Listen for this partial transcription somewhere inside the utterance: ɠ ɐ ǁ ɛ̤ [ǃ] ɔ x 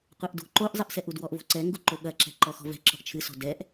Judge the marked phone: correct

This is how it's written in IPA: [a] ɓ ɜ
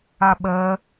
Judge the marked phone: correct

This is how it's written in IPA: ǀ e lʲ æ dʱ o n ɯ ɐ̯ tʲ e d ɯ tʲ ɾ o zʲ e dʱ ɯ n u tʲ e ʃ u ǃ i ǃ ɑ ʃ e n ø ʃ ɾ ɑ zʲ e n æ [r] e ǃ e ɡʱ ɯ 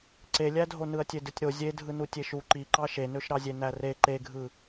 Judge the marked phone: correct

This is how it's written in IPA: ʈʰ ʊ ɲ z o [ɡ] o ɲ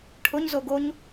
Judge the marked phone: correct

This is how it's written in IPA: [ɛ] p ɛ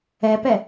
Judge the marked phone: correct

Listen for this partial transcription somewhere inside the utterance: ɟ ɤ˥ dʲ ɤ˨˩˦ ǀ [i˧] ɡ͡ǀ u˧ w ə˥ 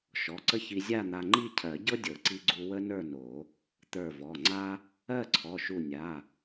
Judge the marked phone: correct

